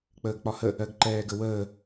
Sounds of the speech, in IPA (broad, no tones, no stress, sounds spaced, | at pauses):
k͡p əː ɡ k͡p ɒ h ə | ɜ ɡ ǃ ɛː ɡ ə w əː